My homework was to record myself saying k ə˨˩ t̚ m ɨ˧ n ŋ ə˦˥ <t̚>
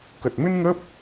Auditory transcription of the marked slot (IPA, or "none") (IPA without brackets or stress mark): p̚